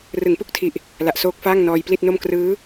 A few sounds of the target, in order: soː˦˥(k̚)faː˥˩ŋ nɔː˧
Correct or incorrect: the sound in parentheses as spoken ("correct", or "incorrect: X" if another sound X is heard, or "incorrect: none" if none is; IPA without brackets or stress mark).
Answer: correct